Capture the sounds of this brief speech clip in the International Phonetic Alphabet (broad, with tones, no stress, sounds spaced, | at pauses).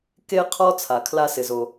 k e˥ qʰ ɔ˥ t͡sʰ a˩ kʰ l a˥ s ɪ˩ z o˩